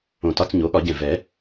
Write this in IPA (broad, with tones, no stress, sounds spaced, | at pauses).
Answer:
õ˧˩ t ɒ˧˥˧ t͡s ɲ o˩˥ ɠ ɒ˨˩˦ ɟ ɛ̃˧˩ v ɛ˨˩˦